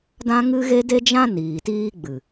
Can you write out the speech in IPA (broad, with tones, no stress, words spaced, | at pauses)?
dã˦ŋɨ˦ɣe˦ de˦d͡ʒã˦ niː˨tiː˦ ɡ͡bɨ˨